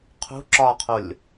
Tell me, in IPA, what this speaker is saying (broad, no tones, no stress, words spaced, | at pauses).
qʰṳ ǁɒqʰolʲ